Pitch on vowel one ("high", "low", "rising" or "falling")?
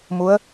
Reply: rising